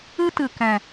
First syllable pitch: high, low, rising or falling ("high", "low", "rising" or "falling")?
high